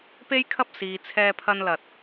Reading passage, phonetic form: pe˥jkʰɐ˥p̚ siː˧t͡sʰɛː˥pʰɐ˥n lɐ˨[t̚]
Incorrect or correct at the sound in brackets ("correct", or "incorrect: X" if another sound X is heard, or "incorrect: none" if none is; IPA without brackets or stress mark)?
correct